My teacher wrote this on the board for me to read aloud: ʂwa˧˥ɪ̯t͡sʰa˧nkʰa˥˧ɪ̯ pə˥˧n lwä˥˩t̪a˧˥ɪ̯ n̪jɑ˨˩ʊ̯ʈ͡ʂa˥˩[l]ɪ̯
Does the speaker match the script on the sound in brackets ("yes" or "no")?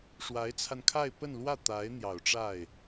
no